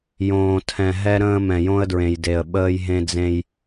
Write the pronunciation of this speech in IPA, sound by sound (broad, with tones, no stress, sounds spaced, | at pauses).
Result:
j õː˨ tʰ ɛ̃˨ ɦ ɛ˦ ɾ ə̃ː˦ m ɛ̃˨ j õ˦ ə̯ d ɹ ẽ˨ j d e˨ ə̯ ɓ əː˦ j ɦ ẽ˦ d͡z ẽ˦ j